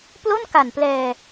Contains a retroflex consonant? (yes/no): no